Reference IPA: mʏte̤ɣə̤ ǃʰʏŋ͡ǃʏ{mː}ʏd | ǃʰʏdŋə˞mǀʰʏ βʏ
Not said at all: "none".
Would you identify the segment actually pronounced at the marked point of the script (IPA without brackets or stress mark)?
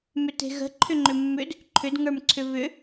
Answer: mː